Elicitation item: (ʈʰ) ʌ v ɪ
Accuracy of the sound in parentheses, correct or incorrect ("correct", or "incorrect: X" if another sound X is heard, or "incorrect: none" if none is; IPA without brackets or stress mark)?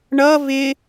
incorrect: ɳ